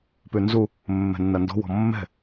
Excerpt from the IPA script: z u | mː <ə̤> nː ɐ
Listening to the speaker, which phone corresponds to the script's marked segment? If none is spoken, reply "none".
ɛ̤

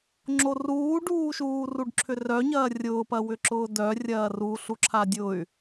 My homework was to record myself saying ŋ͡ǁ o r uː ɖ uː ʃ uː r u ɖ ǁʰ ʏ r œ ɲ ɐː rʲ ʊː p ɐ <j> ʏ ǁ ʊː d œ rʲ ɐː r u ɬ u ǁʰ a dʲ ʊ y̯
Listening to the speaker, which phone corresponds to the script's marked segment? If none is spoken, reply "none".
w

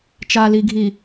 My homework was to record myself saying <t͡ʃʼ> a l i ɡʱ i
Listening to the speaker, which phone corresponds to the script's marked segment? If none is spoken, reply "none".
t͡ʃ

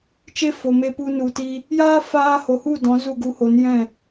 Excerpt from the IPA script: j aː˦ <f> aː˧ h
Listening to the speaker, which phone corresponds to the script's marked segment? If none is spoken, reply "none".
f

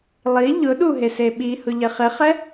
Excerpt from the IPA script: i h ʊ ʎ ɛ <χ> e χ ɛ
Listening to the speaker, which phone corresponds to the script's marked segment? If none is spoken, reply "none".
χ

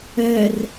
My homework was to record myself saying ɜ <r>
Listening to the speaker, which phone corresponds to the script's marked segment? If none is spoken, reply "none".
r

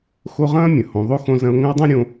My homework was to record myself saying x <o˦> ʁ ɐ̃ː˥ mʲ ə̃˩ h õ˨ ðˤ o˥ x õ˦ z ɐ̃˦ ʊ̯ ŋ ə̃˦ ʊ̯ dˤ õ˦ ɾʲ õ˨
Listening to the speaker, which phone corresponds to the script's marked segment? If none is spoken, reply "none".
o˦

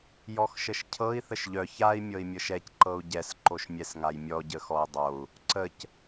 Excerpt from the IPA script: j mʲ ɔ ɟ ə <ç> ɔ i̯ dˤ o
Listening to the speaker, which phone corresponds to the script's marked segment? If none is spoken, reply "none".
x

